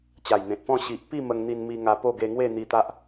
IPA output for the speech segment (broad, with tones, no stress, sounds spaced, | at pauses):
t͡ɕ a˨˩ j n̪ ẽ˨ t̚ p ɔ̃˥˧ ɕ i˨ ʔ p i˥˧ m ə˧ ŋ n̪ i˧ n m i˧ ŋ a˧ p o˥˧ ɡ e˧ ŋ w e˥˧ n̪ i˧ t̪ a˦ ʔ